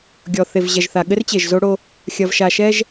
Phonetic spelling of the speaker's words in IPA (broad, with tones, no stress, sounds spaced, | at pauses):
ɡʲ ɔ˨ θ e˨ v ʑ ɛ˨ ʒ θ a˨ ɠ ɘ˦ r t͡ɕ e˨ ʒ z o˦ ɽ o˦ | xʲ ɐ˨ v ʃ a˨ ʃ ɛ˦ ʒ